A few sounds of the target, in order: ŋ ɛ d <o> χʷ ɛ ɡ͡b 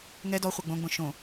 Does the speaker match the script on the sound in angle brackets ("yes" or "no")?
no